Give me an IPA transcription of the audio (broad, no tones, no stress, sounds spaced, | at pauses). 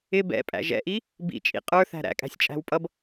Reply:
ɪ b ɛ̰ pʼ æ̰ ʒ ɛ̰ ʔ i | b ḭ t͡ʃʼ ḭ qʼ ə˞ θ æ̤ ɾ æ̰ kʼ æ̤ sʲ t͡ʃʼ æ̤ w pʼ ʌ b